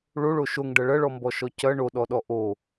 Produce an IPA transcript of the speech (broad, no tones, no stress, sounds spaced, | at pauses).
ɭ o ɭ o ʃ o ŋ ɖ ɐ ɭ ɐ ɭ ɔ m b ɔ ʃ ɔ c ɐ ɳ o ɗ ɔ ɗ ɔ ʔ o